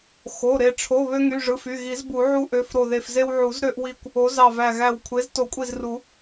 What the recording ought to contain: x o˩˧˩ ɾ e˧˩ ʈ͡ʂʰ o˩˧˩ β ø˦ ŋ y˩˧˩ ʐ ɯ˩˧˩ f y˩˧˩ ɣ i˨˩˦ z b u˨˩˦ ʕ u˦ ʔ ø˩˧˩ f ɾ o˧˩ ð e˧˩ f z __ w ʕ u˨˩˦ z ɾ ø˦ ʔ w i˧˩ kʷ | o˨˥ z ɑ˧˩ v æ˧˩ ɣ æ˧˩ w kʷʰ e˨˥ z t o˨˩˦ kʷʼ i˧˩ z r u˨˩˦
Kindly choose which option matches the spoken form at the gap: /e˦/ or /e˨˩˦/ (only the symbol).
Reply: e˦